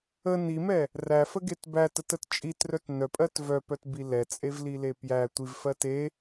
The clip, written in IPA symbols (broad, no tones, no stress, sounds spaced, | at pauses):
ə n i m ɛ | r æ f ə ɡ e t b æ t ə t ə t t͡ʃʼ i t r œ t n œ pʼ ɜ t v œ p œ t b i l ɛ t͡sʼ e v l i l e p j æ tʷ i v f ɜ t e